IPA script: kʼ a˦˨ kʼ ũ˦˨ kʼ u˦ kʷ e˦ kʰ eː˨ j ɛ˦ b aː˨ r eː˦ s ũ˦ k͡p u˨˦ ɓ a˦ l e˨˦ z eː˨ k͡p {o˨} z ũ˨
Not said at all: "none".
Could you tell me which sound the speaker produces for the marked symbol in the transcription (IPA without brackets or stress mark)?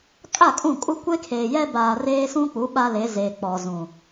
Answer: ɔ˨